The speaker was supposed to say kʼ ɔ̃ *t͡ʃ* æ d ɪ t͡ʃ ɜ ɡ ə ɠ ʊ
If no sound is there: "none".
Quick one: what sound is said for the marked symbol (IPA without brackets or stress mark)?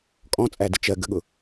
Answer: t͡sʼ